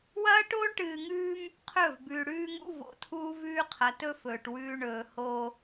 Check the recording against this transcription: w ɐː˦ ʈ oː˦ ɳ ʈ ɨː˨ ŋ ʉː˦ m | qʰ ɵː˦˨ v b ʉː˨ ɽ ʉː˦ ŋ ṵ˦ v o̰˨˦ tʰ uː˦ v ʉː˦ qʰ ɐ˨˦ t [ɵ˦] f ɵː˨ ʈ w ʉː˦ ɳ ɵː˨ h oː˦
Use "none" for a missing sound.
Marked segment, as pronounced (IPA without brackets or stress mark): ɵ˦